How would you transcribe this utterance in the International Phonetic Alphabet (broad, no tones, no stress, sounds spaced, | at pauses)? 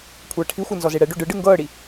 kʷʰ ɤː ʈʰ i xʷ ɤ n z ɔ z e ɽ ɛ ɖ o ɖ ɯ ɖ ɯ ŋ ɡ ɤː ɽ i